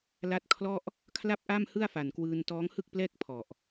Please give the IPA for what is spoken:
l a˦˥ t̚ kʰ l ɔ˥˩ ʔ | kʰ l a˥˩ p̚ ʔ a˥˩ m h ɯ˥˩ a̯ f a˨˩ n k w ɯː˧ n t ɔː˦˥ ŋ h ɯ˥˩ k̚ p l ɛː˥˩ k̚ pʰ ɔ˨˩ ʔ

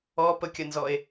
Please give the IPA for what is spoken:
ɔ p ə kʲ ɐ n z ɔ e̯

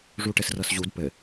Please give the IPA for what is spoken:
ʐ u ʈ ɘ s r ɤ s ʑ u d p ɘ

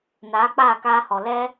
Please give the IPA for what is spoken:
n aː˨˦ k͡p aː˦˨ k aː˧ h ɔ˨ l ɛ˧

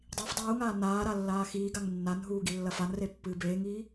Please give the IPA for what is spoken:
dˤ i f dˤ uː ŋ aː n aː ɾ a lː aː x iː ɡ a ŋ nː a n ɦ uː ɡ i lː ɐ f a n r e pː ɨː b eː ŋ iː

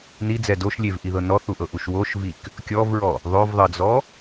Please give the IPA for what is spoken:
n i d͡z ɛ d o ʃ lʲ e v ʔ i ð ɤ n ɔ θ u ʔ ɤ ʔ u ʃ w o ʃ v i k | kʲ ɔ v ɹ ɔ | ðˤ o v ðˤ ɤ d͡z ɔ

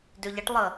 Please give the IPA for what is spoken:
d ø ʎ ɐ ʈ lˠ ə

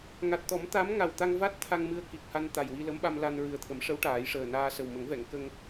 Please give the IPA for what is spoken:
ŋ a˨˩ t̚ t̪ ɔ˨˩˦ m t̪ a˧˥ m ŋ a˨˩ w t̪ a˧ ŋ v a˦˥ t̚ t̪ʰ a˧ ŋ m ɨ˧ ə̯ k i˨˩ k̚ h a˧ n t̪ a˨˩ j w i˧ l ə˧˥ m ɓ a˧ m l a˧ n ɹ ɨ˨˩ ə̯ t̪ʰ ə˨˩˦ m ʂ ə˧˥ w ʈ aː˨˩˦ j ʂ əː˨˩ n aː˧ s ə˨˩ w m ə˨˩˦ ŋ v ɛ˨˩˨ ŋ k ə˧ ŋ

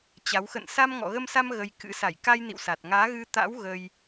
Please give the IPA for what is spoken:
t͡ɕ a˨˦ w x ə̰˧˨ n s a˧ m ŋ ɔ̰˧˨ ɣ ə˧ m s a˧ m ɣ ə˧ j k ɨ̰˧˥ s a˧˩ j k a˧ j n ḭ˧˨ w s a˨˩ t̚ ŋ aː˨˦ ɣ ɨ˧ t̪ a̰˧˥ w ɣ ə˧ j

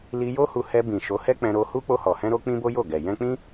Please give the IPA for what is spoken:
l i˧ j o˦ h u˧ h ɛ˧ b ĩ˨ ʃ o˨˦ h ɛ˦ k͡p ɛ̃˧ ɾ o˧ h u˦ k͡p o˧ h ɔ˨ h ɛ̃˧ ɾ o˧ k͡p ĩ˦ b o˦ j o˦˨ ɡ ɛ˨ j ɛ̃˧ k͡p ĩ˦

